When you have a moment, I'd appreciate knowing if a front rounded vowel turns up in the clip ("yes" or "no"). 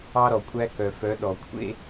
yes